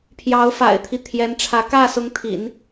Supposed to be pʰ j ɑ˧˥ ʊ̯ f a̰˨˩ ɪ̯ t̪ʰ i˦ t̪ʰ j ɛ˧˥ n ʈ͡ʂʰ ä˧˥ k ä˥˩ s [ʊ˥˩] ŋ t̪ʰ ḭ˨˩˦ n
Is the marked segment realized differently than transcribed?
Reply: yes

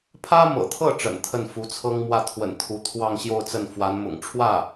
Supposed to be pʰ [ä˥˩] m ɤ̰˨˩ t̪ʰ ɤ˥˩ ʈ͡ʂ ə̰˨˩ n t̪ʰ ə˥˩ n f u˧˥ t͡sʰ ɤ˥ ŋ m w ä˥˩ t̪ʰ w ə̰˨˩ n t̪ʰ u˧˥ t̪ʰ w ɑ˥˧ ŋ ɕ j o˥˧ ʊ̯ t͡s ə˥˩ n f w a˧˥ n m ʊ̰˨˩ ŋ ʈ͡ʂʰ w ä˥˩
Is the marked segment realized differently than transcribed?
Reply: yes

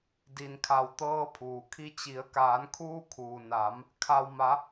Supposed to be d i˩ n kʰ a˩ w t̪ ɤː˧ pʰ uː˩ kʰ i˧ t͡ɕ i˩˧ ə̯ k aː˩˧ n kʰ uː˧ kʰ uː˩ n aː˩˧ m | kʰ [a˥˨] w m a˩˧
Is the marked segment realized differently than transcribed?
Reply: yes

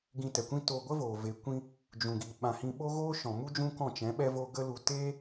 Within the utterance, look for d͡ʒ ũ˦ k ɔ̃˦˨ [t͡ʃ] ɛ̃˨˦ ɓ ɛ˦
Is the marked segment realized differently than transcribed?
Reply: no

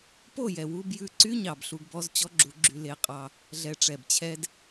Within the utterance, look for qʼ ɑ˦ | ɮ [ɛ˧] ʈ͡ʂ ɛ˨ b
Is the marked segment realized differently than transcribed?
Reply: no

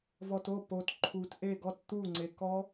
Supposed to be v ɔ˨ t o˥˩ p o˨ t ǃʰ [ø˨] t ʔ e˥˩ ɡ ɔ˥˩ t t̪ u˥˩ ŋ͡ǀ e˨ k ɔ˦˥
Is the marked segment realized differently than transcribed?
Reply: yes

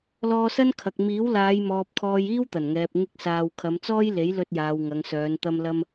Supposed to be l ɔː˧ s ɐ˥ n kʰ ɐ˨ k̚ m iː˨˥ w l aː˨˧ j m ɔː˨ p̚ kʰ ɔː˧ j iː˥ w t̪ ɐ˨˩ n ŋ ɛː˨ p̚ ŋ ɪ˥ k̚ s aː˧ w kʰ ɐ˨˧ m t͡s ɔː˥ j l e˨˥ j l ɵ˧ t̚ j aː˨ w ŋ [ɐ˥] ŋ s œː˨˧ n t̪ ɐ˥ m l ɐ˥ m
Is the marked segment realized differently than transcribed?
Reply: yes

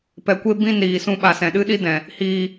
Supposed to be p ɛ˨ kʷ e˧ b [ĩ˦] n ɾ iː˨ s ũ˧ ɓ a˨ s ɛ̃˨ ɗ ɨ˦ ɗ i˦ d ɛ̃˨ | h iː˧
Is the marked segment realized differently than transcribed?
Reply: yes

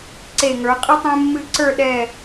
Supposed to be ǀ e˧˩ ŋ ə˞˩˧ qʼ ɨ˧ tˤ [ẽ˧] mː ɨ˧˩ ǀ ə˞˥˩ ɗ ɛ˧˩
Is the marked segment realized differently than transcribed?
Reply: no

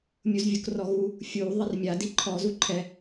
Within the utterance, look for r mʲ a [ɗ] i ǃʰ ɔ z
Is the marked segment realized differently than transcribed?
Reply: yes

